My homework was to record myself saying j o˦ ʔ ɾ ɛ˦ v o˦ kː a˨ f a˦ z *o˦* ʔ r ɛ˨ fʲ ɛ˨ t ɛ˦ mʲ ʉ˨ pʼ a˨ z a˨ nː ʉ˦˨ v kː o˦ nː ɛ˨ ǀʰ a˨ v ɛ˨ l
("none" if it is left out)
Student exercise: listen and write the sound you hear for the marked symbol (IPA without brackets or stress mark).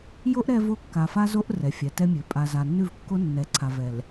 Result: o˦